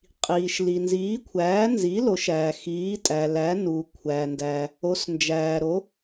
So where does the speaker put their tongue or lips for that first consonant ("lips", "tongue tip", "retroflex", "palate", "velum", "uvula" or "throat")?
uvula